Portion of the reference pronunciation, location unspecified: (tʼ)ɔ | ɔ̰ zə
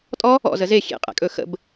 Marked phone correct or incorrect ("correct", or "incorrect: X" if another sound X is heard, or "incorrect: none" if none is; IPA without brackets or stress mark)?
correct